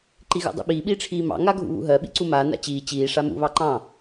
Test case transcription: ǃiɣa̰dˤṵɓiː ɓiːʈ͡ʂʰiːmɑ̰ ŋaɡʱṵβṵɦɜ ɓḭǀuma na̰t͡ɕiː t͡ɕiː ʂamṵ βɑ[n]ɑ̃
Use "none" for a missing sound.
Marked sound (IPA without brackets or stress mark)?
ǃ